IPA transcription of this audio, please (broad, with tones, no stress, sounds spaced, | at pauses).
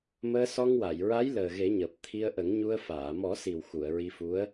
m əː˧ s ɔ˧ ŋ w a˨˩˨ j ɹ a˧˥ j l əː˨˩ ɣ e˨˩˦ ɲ əː˨˩ p̚ t̪ʰ i˧ ə̯ ʔ ə˨˩˦ ŋ ɲ u˧ ə̯ f aː˨˩˨ m ɔ˨˩˦ s i˨˩ w x u˨˩˨ ə̯ ɹ i˧ f u˧˥ ə̯